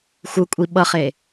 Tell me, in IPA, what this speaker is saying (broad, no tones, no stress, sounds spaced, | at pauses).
xʷ ɯ kʷʼ i ɓ ʌ χ e